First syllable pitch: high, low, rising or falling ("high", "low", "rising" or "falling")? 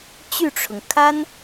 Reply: falling